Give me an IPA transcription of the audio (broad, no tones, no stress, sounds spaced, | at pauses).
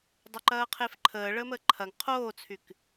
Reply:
dˤ ə˞ ǃ ɐː qʰ e f ǃʰ əː ɭ əː m əː ǃʰ ɐ ŋ qʰ oː t͡sʰ y k